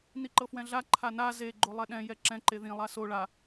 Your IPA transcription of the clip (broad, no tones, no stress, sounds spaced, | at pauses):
n i ǃ ɤ f w ɛ̃ ɮ a ǃʰ a n a z e ɡ͡ǃ o lˠ ɛ ɗ ɛ̃ j ɛ ǁ ɛ̃ ǃ e ð ĩ lˠ a s o ɭ a